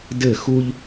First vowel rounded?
no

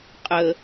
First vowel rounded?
no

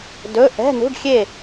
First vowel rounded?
yes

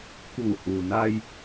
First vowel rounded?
yes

